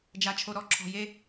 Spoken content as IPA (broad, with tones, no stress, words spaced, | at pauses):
d͡ʒa˧t͡ʃʰo˧ ɾɔ˦ǁʰɔ̤˧je˦